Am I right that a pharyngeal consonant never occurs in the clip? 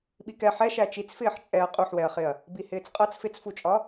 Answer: no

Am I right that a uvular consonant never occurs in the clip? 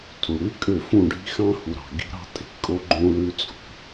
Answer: yes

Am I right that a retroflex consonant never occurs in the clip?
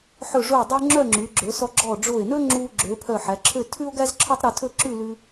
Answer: no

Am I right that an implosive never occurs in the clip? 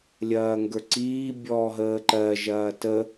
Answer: yes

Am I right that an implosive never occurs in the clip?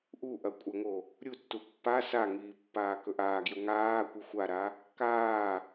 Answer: yes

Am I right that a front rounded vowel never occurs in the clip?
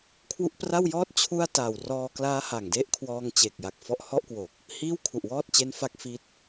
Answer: yes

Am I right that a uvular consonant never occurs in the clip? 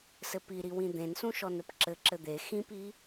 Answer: yes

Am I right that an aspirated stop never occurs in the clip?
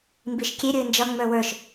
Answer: yes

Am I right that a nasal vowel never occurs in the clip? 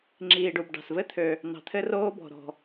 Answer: yes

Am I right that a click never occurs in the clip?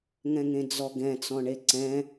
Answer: no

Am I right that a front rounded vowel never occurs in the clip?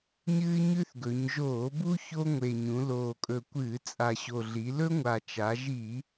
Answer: yes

